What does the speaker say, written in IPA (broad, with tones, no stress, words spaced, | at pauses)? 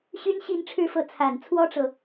ɕy˥nɕi˥˧nʈ͡ʂʰɻ̩˥˧fɤ˥˩ t͡sʰa˨˩nt͡sʰwɔ˥ʈ͡ʂɤ˨